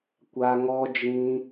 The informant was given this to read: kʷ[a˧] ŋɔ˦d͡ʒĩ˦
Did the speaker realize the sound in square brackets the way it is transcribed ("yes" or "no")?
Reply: yes